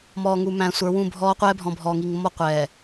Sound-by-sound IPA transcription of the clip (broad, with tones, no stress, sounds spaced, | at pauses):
m ɔː˨ ŋ u˨ m æ̃˨ sʷ ə˞˨˦ w ũ˦˨ bʱ ɔː˦ qʷ ɛː˦ bʱ ɔ̃˨ bʱ ɔː˨ ŋ i˨ ŋ mː ɔ˦ qʷ ɛː˨